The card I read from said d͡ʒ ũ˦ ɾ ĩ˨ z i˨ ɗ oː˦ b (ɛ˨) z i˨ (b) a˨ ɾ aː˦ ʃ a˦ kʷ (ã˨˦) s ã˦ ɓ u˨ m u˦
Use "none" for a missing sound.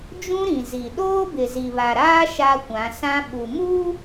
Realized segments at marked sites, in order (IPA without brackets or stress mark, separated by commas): ɪ˨, β, ã˨˦